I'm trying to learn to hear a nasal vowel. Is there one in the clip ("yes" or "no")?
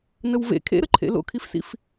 no